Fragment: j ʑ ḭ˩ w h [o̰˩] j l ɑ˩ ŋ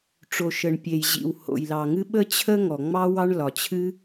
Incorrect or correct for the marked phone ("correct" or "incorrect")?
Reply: correct